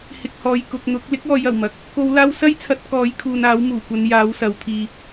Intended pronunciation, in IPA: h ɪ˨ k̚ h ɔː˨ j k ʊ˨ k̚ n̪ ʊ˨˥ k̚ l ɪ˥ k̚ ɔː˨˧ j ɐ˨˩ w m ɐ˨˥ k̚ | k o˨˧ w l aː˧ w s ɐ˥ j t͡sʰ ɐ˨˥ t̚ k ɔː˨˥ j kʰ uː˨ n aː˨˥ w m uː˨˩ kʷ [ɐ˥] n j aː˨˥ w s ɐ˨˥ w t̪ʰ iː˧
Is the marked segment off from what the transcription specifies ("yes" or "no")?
yes